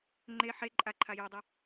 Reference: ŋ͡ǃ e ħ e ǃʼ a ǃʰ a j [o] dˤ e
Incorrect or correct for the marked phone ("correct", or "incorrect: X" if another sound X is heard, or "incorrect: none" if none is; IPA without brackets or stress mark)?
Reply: correct